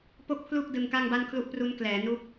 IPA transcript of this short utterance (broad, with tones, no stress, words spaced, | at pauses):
po˥˩k̚pʰlu˥˩k̚dɯ˧ŋ ka˥˩ŋba˥˩nkʰlu˥˩ʔ pru˦˥n klɛː˩˦ nu˦˥k̚